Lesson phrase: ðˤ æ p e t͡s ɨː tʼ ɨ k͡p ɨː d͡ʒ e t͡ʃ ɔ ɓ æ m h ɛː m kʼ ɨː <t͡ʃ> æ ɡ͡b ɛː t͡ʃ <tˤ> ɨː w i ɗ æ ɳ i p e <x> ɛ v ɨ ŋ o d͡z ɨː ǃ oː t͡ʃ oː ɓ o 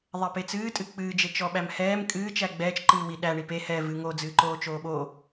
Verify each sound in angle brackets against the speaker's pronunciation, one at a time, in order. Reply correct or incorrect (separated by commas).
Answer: correct, incorrect, incorrect